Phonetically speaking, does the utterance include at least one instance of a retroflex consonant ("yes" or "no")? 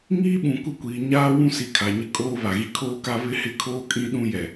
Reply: no